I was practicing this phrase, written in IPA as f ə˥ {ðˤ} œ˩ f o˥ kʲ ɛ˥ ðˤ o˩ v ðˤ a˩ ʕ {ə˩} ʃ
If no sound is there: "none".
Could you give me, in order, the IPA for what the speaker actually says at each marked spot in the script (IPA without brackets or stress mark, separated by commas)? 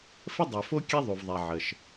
dˤ, ə˩